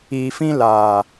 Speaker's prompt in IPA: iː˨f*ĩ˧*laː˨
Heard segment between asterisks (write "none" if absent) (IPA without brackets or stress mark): ĩ˧